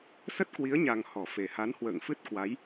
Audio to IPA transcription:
s ə˦˥ t̚ k w i˨˦ ə̯ ɲ a˨˩ ŋ h ɔ˧˩ f e˨˩ h a˨˦ n h w ə̰ː˧˨ ŋ f ɨ˦˥ t̚ k w a˨˦ j

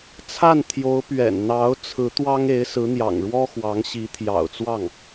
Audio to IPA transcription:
t͡sʰ a˥˩ n t̪ʰ j o˧˥ ʊ̯ p ɥ ɛ̰˨˩ n n̪ ɑ˧˥ ʊ̯ t͡sʰ ɹ̩˧˥ t̪ w ɑ˥ ŋ e˧˥ ɪ̯ s ɹ̩˧˥ n̪ j ɑ̰˨˩ ŋ ɻ w ɔ˥ x w ɑ˧˥ ŋ ɕ i˧˥ t̪ʰ j ɑ̰˨˩ ʊ̯ t͡s w ɑ˥˩ ŋ

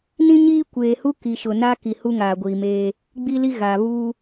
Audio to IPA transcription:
n ĩ˦ ɲ iː˦ kʷ eː˨ h u˦ k i˨ ʃ ʊ˨ n a˦ k i˨ h u˦ ŋ aː˨ ɡʷ iː˨ m eː˦ | ɡ͡b i˦ l i˦ ɣ a˨ β u˦

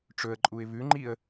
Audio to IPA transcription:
ʈ͡ʂ ɵ ə̯ ǃʼ u ɪ̯ β ʉ ŋ͡ǃ i ə̯

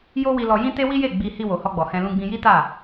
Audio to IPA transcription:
j o˦ w i˧ l ɔ˧ j ĩ˦ t e˦ w i˦ j e˦˨ ɡ͡b i˧ h i˧ w o˨ h ɔ˧ ɡ͡b ɔ˨ h ɛ̃˧ l ũ˧ ɡ͡b ĩ˧ j i˦ t a˦˨

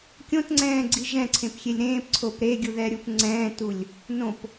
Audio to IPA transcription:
kʲ õ t ŋ͡ǀ ɛ̃ː ɡ͡ǀ i ʒ ɛ̃ ǀʰ ẽ p xʲ e lʲ ɾ ẽː p ǀʰ o p ɾ e ɡʲ u ð ɛ ɾʲ u p ŋ͡ǀ ɛ̃ː t u lʲ | n õ p

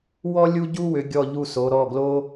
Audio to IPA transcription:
w ɔ˥ lʲ u˥ ɟ u˥ w ʏ˩˧ ɡʲ ɔ˦˨ ʎ u˦˨ s o˩˧ ɾ ɔ˩˧˩ ɡ l o˥

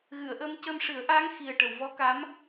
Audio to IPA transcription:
ɣ ɨ˨˩˨ ə̯ ʔ əː˧ m c ə˧ m ʂ ɨ˨˩˦ ə̯ ʔ aː˧˥ ŋ x i˨˩ ə̯ ʈ ə˨˩˨ w v ɔ˧˥ k a˧˥ m

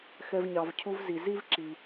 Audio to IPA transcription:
x ɛ˧ v ɲ ɑ˨ v cʰ u˦ v z i˨ z i˦ v ǁ i˨

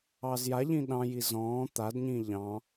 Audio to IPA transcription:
ɑ z j a ʎ ĩ ɗ ɑ̃ j i z ɔ̃ː t̪ a d ɲ ĩː ʎ ɑ̃

